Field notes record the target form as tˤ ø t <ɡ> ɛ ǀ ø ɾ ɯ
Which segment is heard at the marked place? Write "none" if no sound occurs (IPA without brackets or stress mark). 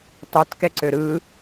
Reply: k